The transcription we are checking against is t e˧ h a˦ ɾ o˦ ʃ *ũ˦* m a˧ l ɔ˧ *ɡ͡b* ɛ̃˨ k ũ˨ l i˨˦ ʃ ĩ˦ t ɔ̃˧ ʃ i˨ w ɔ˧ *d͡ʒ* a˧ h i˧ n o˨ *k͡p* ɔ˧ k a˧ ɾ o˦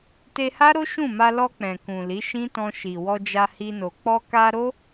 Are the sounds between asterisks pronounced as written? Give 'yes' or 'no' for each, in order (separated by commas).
no, no, yes, yes